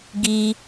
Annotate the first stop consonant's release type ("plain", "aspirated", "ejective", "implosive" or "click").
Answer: plain